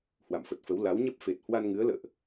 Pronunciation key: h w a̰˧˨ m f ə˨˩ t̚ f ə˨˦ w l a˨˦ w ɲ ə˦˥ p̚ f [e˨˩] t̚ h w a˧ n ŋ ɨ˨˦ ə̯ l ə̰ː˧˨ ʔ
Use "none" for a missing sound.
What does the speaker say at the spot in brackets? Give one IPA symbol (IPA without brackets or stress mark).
e˨˩